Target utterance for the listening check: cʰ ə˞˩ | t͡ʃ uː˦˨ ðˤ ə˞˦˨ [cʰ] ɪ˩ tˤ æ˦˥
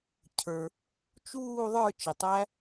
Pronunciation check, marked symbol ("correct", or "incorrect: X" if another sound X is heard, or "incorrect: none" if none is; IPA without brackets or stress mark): incorrect: t͡ʃ